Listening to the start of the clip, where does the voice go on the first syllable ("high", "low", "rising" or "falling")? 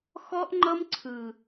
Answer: high